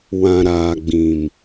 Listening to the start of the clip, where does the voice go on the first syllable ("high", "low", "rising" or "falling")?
low